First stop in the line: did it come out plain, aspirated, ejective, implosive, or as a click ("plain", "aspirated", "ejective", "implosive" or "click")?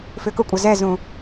plain